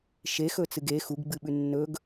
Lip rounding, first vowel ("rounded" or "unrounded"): unrounded